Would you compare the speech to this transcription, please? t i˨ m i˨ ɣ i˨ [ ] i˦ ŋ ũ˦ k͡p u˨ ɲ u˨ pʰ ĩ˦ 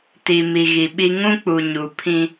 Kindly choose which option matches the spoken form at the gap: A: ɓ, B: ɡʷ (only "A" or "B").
A